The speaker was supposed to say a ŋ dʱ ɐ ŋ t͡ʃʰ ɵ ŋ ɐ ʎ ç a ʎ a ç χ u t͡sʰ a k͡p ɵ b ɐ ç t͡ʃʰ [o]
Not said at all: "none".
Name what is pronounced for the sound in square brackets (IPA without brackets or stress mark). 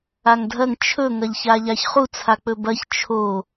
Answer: o